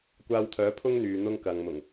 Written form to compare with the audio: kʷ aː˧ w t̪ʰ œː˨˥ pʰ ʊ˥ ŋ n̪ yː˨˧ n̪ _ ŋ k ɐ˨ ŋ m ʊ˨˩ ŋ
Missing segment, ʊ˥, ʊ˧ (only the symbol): ʊ˥